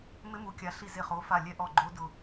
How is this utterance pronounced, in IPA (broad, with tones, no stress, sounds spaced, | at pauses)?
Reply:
m ɪ˦˥ m u˨˥ kʲ a˨˥ ɬ i˦˨ z e˦˨ χ o˨˥ f a˦˨ lʲ ɛ˦˥ ʔ ɔ˦˨ ɡ͡ǃ o˦˥ d ʊ˦˨